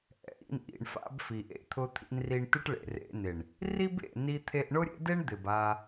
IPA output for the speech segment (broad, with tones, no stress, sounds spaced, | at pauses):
ʔ ɛ̰˨ ʔ ḭ˧ n ʔ ḭ˨ ɳ f a̰˧ b f i˨ ʔ ḛ˧ t̪ʰ ʊ˧ t̪ʰ ḭ˧ n r i˧ ɳ t ɪ˦ ʈ ɭ ḛ˨ r ḛ˧ n ɪ˨ ɳ | r i˦ b ḛ˨ n i˧ t̪ʰ e˧ ʔ ɳ ʊ˦ ɾʲ ḛ˦ d e˦ ɳ d̪ ɪ˨ b a˧